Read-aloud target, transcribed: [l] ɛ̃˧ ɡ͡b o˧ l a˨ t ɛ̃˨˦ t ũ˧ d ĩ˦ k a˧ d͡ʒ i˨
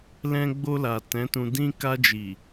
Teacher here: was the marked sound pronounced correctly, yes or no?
yes